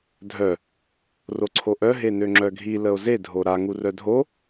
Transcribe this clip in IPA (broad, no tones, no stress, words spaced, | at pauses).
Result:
dʱœ | roǀʰoʔœ ɦenøŋ͡ǁœɡʱi ləo̯ze dʱoɾa ŋurœdʱo